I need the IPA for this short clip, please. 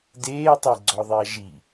deːtˤɛɡ͡ǀɔðˤiɐ̯ ʒi

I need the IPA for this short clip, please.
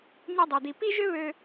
ɲø˧dˤø˨d̪i˨ pi˦ʒø˦βø˧

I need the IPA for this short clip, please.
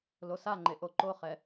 losaŋ͡ǃe ʔoǃoχɛ

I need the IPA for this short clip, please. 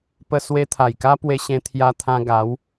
pə˧ swe˧t̪ʰa˨˩jka˦ pwe˧ɕẽ˧t̪ʰja˧t̪ʰã˧ ɡa˨˦w

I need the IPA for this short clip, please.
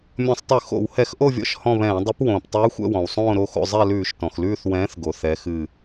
mʲɔ̃˧˩˧sˤtˤɨ˧˩˧ xo̰˧˩˧whɛ˧˩˧x ʔo˦˨vʲɔ̰˨˥ʃ hɔ̃˦˨βɛ̃ː˧˩˧ dˤɨ˨˥p wõː˩ptˤʉː˨˥ xʷɛ̰˦˨wɔ̃˩wsˤõː˦˨ ɾo˦˨xo̰˦˨ zˤɛ˦˨lʉː˧˩˧ʃtɔ̃˩xlʉː˦˨θ wɛ̃ː˨˥θɡo˩ θɛ˨˥xɨ˦˨

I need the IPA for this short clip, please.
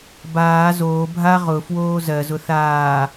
baː zoː bʱa ʁʊfwoː zɜzʊ θaː

